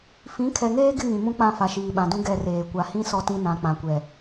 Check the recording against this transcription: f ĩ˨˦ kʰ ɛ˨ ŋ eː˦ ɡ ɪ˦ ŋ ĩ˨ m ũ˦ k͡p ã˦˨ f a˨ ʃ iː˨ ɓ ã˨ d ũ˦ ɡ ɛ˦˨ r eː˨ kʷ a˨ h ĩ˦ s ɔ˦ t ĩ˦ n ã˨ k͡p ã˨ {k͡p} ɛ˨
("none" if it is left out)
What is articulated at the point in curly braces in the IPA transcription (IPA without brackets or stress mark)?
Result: kʷ